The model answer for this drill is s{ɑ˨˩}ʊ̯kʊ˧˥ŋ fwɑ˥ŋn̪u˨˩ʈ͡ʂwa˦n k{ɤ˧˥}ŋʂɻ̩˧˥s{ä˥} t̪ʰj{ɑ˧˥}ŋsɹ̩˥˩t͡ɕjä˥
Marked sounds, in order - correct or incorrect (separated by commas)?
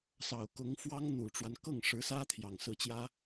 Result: correct, incorrect, correct, incorrect